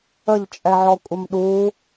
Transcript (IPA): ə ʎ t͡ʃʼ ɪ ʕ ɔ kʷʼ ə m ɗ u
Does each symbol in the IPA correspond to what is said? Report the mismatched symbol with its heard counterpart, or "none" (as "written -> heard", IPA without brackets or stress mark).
ɪ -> ɛ